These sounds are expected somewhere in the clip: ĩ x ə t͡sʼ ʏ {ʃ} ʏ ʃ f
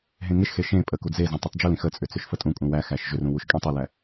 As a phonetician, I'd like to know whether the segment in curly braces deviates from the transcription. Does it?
yes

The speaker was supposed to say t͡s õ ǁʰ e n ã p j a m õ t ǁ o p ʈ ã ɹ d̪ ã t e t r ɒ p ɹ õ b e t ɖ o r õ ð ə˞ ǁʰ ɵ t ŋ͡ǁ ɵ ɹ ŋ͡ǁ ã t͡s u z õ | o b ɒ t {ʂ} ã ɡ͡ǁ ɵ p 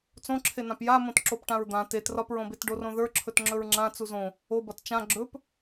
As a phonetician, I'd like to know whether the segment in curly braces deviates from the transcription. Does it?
yes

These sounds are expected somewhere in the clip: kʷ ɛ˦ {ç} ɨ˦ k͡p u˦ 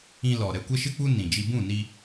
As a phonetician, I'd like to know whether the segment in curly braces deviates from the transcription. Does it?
yes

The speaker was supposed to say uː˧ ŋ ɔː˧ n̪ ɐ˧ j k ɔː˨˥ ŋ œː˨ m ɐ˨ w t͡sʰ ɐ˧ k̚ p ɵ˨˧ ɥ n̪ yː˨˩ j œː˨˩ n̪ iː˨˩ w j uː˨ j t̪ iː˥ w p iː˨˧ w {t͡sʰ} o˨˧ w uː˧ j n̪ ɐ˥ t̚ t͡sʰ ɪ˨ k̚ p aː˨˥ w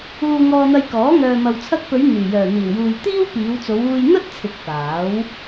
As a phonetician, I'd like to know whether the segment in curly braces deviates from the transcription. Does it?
yes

